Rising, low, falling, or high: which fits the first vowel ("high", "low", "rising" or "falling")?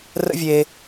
high